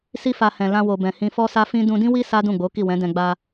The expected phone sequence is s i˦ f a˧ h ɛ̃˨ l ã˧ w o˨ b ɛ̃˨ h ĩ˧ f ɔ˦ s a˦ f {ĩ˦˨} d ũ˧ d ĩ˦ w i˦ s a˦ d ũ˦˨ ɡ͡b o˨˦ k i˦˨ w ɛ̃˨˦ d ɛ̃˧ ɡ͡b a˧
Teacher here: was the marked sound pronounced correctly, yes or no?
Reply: no